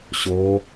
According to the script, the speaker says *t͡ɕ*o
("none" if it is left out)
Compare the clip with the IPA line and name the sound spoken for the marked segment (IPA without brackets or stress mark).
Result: ɕ